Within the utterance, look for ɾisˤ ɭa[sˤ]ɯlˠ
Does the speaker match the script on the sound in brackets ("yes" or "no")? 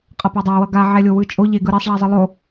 no